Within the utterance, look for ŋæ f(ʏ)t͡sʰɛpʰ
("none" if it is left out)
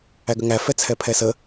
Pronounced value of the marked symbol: ɛ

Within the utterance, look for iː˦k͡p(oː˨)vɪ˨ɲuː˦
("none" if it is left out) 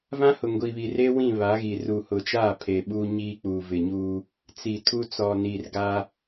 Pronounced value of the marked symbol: uː˨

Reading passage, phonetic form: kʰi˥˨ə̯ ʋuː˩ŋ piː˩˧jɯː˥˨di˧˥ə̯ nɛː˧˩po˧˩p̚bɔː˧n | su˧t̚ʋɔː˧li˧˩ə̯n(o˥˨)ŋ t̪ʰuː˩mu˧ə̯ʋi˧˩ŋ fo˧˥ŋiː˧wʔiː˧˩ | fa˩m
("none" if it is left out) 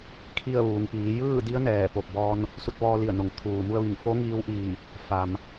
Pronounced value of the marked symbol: o˩˧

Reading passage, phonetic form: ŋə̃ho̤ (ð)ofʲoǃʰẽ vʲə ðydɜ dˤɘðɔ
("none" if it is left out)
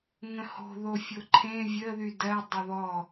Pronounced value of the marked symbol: ð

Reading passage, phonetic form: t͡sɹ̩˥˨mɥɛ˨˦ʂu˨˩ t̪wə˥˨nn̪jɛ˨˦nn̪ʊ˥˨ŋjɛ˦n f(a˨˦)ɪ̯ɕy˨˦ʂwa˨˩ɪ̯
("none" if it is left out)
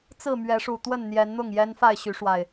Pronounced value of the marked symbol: a˥˨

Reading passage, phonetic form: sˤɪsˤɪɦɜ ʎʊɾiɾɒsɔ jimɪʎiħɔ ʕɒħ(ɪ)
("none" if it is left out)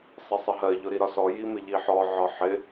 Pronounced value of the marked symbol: ɪ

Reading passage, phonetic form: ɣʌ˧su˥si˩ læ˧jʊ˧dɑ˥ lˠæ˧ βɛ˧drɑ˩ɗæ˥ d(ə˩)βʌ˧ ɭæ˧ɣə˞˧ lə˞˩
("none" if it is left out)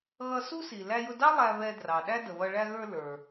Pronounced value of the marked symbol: ə˩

